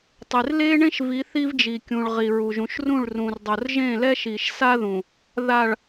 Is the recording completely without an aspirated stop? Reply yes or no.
yes